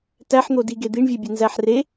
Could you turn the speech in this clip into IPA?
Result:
t æ ħ n̪ o d i ɡ e d̪ i ɳ vʲ e bʲ e n z æ ħ r e

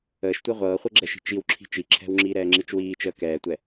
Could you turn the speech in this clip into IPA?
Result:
əː ʃ tʷ ɤ ʁʷ ɤː χʷ ɛ ɡ͡ǁ ɛ ʃ i̤ t͡ʃ i w ǁʰ i̤ t͡ʃ i ǁʰ ɛ̤ w ŋ͡ǁ iː ɾ ɛː ŋ͡ǁ i t͡ʃ w iː t͡ʃ əː k ɛː tʷ ɛ

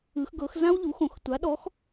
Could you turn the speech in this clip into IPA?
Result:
ɯ˩˧ x ɡ ɤ˩˧ x z ã˥ w ʎ u˩˥ x õ˩˧ x tʷ a˩˥ ɗ ɔ˩˥ x

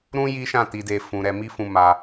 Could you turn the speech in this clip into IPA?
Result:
ɾ ũ˦ j i˦ ʃ ã˦˨ t i˨ d e˨ f ũ˨ ɾ ɛ˨ m i˧ f ũ˨ m a˧

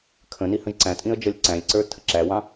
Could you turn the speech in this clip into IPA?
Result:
kʰ ə̃ n i h ə̃ ʒ ǀ æ̃ tʼ ĩ ə̯ d͡ʒ ʌ lʲ ǀ æ̃ lʲ ǀ ə˞ tʰ ə ǁ æ w ɑ̃

